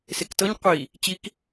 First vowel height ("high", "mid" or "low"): mid